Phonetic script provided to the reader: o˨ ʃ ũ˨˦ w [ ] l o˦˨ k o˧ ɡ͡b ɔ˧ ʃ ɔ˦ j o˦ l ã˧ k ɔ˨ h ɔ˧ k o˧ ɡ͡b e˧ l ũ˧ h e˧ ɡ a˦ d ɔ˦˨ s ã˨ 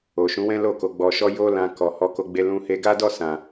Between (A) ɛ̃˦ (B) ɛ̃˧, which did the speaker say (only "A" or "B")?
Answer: A